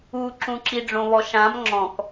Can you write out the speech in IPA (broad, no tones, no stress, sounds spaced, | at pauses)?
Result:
u ǁ ũ ǁ i ɖ͡ʐ õ β ɔ ʃ ã m ŋ͡ǁ ɔ̃ k